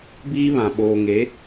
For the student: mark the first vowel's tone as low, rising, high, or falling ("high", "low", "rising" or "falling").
high